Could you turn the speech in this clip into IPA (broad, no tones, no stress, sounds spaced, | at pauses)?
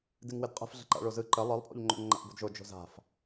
d ɨ ŋ w ɘ d qʼ ə̤ f ɮ ə̤ ǃ a̰ ɭ o z ɯ ǃ ə lˠ ɯ lˠ pʼ o̰ ʎ ŋ͡ǃ o̰ ŋ ŋ͡ǃ a̰ ʔ b o̤ d ʒ o d͡ʒ o̤ z a̤ f